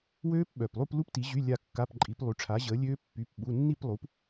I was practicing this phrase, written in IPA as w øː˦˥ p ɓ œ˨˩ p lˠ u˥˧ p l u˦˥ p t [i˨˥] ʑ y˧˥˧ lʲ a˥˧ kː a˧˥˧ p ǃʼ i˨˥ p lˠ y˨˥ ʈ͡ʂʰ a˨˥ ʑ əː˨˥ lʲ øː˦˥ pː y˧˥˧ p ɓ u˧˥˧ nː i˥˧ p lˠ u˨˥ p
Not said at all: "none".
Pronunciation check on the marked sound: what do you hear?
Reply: i˨˥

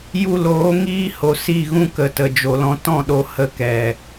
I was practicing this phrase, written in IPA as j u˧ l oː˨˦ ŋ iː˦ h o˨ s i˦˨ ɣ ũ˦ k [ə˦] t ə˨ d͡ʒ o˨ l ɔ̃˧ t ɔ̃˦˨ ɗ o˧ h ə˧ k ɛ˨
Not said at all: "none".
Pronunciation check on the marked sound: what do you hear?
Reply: ə˨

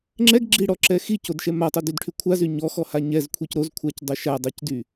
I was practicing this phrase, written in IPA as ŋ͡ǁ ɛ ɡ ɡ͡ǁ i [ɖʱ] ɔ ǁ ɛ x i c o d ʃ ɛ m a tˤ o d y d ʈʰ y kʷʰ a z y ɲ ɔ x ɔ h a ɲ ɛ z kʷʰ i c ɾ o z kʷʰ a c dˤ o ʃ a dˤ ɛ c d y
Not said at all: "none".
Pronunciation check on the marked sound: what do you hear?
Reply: ɽ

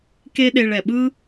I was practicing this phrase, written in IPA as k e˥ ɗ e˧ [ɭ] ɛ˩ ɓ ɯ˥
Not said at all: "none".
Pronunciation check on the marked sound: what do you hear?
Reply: ɭ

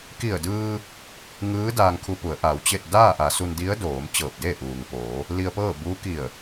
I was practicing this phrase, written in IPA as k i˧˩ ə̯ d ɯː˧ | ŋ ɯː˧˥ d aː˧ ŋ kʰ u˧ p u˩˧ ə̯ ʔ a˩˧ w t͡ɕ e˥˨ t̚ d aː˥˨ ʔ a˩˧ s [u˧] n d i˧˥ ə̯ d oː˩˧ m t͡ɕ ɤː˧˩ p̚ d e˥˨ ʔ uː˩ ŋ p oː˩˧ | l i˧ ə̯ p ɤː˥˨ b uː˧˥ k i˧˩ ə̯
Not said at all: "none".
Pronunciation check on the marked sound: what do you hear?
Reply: u˧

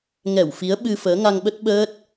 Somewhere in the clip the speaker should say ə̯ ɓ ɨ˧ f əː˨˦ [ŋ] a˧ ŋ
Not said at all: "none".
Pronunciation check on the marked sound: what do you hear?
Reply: ŋ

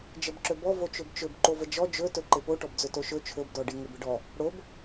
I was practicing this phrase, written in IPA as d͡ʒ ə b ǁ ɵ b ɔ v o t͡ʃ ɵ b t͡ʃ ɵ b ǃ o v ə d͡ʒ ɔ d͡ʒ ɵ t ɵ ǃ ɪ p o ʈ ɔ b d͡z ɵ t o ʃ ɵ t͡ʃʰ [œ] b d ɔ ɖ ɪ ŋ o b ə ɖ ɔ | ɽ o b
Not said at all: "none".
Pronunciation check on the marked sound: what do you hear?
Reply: ɵ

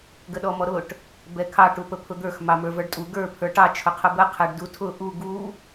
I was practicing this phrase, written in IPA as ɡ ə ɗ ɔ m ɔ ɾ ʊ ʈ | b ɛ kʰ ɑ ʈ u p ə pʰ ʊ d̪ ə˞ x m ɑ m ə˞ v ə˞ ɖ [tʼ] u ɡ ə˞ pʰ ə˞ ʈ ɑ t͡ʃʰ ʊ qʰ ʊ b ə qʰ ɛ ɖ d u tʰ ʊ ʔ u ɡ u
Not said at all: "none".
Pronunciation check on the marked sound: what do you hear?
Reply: tʼ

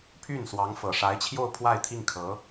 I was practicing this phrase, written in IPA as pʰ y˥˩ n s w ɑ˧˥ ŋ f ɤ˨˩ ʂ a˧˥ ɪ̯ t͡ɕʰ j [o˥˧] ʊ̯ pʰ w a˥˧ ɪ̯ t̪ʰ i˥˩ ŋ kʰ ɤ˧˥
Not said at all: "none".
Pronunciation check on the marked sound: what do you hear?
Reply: o˥˧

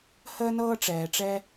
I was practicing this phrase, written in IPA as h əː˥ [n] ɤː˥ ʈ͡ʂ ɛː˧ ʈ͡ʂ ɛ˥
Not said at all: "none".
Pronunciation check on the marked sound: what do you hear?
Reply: n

